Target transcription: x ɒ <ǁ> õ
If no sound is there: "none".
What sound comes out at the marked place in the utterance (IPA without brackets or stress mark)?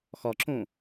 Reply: ǁ